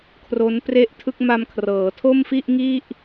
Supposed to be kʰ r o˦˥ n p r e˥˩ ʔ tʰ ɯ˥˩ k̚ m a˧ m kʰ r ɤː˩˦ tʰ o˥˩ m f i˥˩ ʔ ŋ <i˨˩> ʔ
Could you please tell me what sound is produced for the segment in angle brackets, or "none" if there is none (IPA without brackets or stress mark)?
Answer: i˥˩